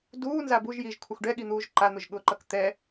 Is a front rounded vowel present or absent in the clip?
absent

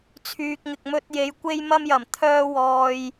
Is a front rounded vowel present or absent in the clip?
present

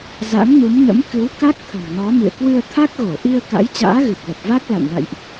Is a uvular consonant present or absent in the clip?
absent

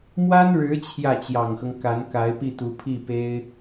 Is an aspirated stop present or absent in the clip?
present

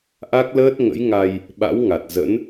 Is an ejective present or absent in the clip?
absent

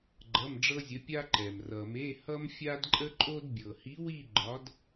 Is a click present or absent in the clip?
present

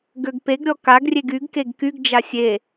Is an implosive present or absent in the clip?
absent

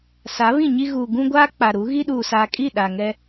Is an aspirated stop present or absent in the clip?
absent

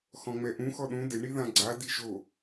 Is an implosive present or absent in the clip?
present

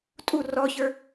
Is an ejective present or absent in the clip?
present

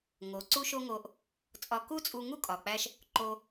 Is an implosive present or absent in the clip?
absent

